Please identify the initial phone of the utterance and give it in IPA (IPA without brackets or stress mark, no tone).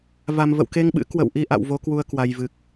v